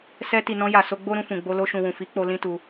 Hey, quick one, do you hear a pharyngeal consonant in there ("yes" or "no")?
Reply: no